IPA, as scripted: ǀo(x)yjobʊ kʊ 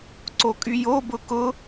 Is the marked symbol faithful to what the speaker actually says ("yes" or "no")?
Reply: no